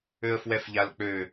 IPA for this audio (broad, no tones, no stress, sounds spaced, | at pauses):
ø ə̯ f w ɛ f ʎ a l k͡p ø